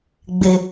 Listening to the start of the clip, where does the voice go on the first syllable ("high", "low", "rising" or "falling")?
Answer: low